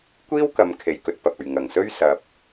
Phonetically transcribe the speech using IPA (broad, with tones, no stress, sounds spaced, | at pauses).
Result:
kʷ iː˥ w k ɐ˨˧ m kʰ e˨ j k ɵ˧ t̚ p ɐ˨ p̚ ɵ˨ ɥ ŋ ɐ˨˩ ŋ s ɵ˥ ɥ s ɐ˧ p̚